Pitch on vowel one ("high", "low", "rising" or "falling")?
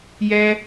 high